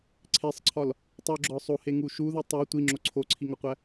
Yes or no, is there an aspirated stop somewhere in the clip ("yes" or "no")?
yes